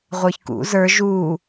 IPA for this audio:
ʁʷ ə˞ ç k ṵ z ə˞ ʒ u

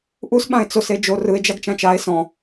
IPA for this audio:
ʔ u s ɓ ã e̯ t͡s o s e d͡ʒ o r ɯ e̯ d͡ʒ a ɡ t͡ʃ ã t͡ʃ a e̯ s ɔ̃

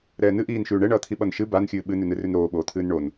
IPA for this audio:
ɾ ɛː n ɨ ʔ iː n ʃ ʉː ɳ ɛ ɳ ʌː t̪ʰ i ɓ ʌ n ʃ ɨ b a n xʲ ɨː ɓ ɨ n ʉ n ɨ r ʉ n ɾ oː ɓ oː t̪ʰ ɨː n ɳ o n

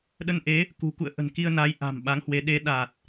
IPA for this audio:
ɗ ə˧ n ʔ e˨˦ | k ṳ˨˩ k ṵ˧˨ ə̯ ʔ ə̤˨˩ n k i˧ ə̯ n a˨˦ j ʔ a̤˨˩ m ɓ a˨˦ ŋ h w e˨˦ ɗ e˨˦ ɗ a˨˩ t̚

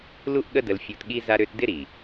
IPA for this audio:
l u˦ ʔ ɠ ə˦ d ə˧ l fʲ u˧ t ɠ i˦ z a˦ ɾ ø˦ t d ɪ˦ ɾ i˨

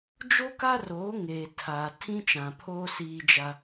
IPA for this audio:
d͡ʒ o˦ k a˦ r oː˨˦ ŋ eː˨ tʰ aː˨ tʰ ĩ˦ t͡ʃ ã˨ pʰ oː˦ s iː˦ d͡ʒ a˦

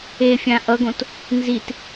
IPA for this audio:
e fʲ ã ʔ ʌ ɡ õ t | n z i t

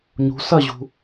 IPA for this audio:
ɲ ṳ s ɐ ʑ ṳ

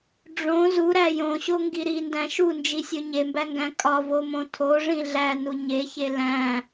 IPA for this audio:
ɖ͡ʐ õ z u ɾ æ j õ ɕ o ŋ ɡ i ɾ i n d æ̃ ʃ u n d͡ʒ i sʲ o ɲ e m b æ ŋ ɡ æ̃ kʼ ɒ v o m õ tʰ o ʐ ĩ ɮ æ n u ɲ e ç e l æ̃

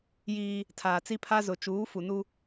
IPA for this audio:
j iː˦ | tʰ aː˨ t͡s i˦ pʰ a˦ z ʊ˨ t͡ʃ uː˨˦ f u˨ n u˦

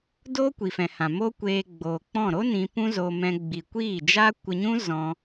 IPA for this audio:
d oː˦ kʷ i˨ f ɛ̃˨ h ã˨ m o˦ kʷ eː˧ ɡ͡b oː˨ k͡p ɔ̃˦˨ ɾ o˦ n ĩ˧ p ũ˦ z o˧ m ɛ̃˧ ɡ͡b i˨ kʷ iː˦˨ d͡ʒ aː˦ kʷ ə˧ ɲ ũ˦ z ɔ̃˧

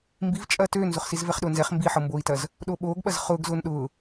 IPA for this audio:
m b i v t͡ʃʼ ɐː t øː n z ʊ χ s i z v ɛ χ ɗ ʊː n z ɛ χ m b i ħ ɤ m b oː i̯ t ɐ z | ɗ o ɓ oː ɡ ɓ ɐ z χ ʊː ɡ z ʊː n ɗ ʊː

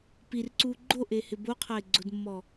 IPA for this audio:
p i r ǀ uː ɡ͡ǃ o ʔ e h ɪ b o qʰ a ɪ̯ ɡ͡ǀ ʊ d mː ɔ

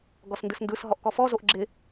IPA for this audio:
ɡ ɔ s n d ɯ s n d ɯ s ɦ ɔ ʔ k ɔ f ɔ z o ʔ ɡ͡ǁ ɪ

